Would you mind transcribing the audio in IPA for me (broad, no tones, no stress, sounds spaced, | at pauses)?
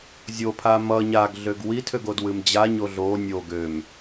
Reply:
zʲ o pʰ a m ʌ ɲ a ɡ ɮ ø ɡ w i tʰ ø ɡ o d w ɨ m d͡ʑ a ɲ o ɮ o nʲ o ɡ ø m